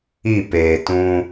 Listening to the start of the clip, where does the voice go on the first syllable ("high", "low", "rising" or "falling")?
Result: falling